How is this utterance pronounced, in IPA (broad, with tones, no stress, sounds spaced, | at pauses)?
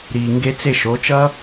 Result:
ɾ iː˨ ŋ ɡ e˧ t͡s e˧ ʃ o˨˦ t͡ʃ ʌ˦